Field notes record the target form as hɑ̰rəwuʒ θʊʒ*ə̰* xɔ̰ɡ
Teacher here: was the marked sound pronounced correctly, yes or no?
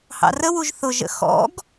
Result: yes